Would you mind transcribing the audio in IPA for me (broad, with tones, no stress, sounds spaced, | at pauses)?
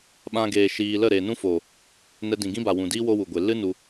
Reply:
ɓ ã˧ ɡ eː˨ ʃ iː˧ l ə˦˨ ɾ eː˨ n ũ˦ f o˨ | n ɛ˧ d ĩ˨ ɡ ĩ˦ b a˨ w ũ˨ d iː˦ w o˦ w u˨ ɡʷ e˨ l ɨ˦ n u˧